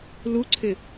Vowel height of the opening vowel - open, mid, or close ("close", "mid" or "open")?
close